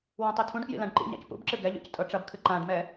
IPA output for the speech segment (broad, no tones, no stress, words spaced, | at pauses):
wãtˤitʰũɖkjḭ lãɖǃḭɲa̰c pṵbǁɨ ɡɛʎṵc tʼɤʈ͡ʂɐbkʰɨ ǃãɖmɛ